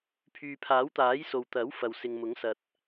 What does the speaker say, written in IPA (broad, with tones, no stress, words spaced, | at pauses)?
pʰyː˨pʰaː˨˥wt̪aː˨˥j so˨wt̪ɐ˨˥w fɐ˨wsɪ˨ŋmʊ˨˥ŋsɐ˨t̚